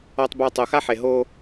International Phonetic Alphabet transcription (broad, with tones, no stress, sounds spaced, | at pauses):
ɔ˨ tˤ b a˨ tˤ o˨ x a˦ ħ e˨ ɦ o˦